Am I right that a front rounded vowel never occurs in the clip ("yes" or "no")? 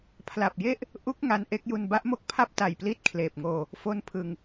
yes